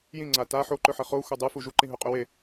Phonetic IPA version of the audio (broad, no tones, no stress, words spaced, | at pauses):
jĩŋ͡ǀa ta ħoǃɵħɐ χoxʷa dˤufu ʒuǃĩɦɵqʼɵ we